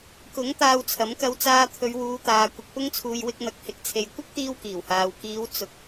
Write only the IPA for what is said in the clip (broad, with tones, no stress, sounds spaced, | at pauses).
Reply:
k ʊ˨˥ ŋ t̪ aː˧ w t͡sʰ ɐ˨˥ m k ɐ˧ w t͡s aː˧ t̪ʰ ɵ˨˧ ɥ w uː˨˧ t̪ aː˨ kʷ ɐ˨ k̚ p ʊ˧ ŋ t͡sʰ uː˨ j w ɪ˧ k̚ n̪ ɐ˨˥ k̚ h ɪ˨˥ k̚ t͡sʰ e˨ j kʷ ɐ˥ k̚ t̪ iː˧ w k iː˨˩ w h aː˨ w k iː˨˧ w t͡s ʊ˨˥ k̚